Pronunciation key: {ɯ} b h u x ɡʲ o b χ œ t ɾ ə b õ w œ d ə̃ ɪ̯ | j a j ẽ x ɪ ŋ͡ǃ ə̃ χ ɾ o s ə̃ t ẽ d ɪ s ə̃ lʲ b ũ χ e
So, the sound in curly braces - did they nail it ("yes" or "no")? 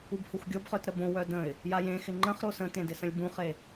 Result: no